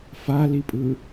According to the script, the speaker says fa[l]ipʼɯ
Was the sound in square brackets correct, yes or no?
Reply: yes